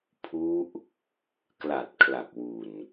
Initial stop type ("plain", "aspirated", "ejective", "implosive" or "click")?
aspirated